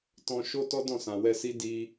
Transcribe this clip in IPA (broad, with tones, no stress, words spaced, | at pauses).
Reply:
tɔ̃˧ ʃo˦ tɔ˦dɔ̃˦˨sã˨ wɛ˧si˦ di˧